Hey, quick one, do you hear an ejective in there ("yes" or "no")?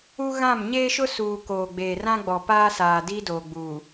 no